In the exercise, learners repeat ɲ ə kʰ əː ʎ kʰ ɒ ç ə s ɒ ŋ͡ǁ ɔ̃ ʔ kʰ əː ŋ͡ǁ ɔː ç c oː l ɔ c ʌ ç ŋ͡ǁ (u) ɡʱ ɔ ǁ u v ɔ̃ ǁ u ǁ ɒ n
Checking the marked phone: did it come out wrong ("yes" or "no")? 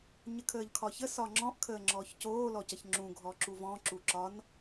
yes